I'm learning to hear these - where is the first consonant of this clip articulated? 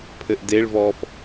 lips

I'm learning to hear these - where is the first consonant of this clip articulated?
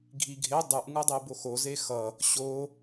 velum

